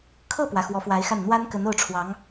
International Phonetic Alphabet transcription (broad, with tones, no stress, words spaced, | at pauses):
kʰɤ˥˩pwä˩ xwɔ˧˥fwa˧˥ɪ̯xa˥˩n n̪wa˥n kə˧˥no˥˩ʊ̯ʈ͡ʂʰwɑ˧˥ŋ